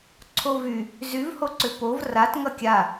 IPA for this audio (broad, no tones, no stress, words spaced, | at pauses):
ǀʰovy | zyvhoǀʏ pov rat ŋʌkʲa